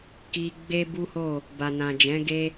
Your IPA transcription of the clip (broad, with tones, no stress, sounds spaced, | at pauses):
k i˧ ɡ͡b e˦ b u˦ h o˦˨ | b a˨ n ã˨ d͡ʒ ɛ̃˨˦ ɡ e˦